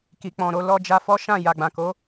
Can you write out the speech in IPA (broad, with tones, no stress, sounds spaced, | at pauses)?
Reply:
k i˨ k͡p ɔ̃˨ ɾ o˧ l ɔ˧ d͡ʒ a˧ f ɔ˦ ʃ ã˦˨ j a˨ ɡ͡b ã˨ k o˨˦